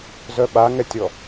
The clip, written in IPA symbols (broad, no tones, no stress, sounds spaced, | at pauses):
z œ ɓ a ŋ ɛ tʲ ɔ